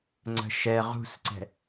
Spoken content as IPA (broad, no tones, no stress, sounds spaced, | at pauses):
ŋ͡ǀ ə̤ ʃ ɛ ʁ ṳ s ǀ ɛ̤